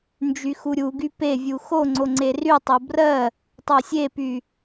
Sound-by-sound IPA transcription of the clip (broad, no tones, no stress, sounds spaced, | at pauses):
n d͡ʒ y x u ɾʲ u ɡ y p e vʲ u x o ŋ͡ǀ o ŋ͡ǀ e r y tˤ o b r ɜ | tˤ ɜ sʲ e p y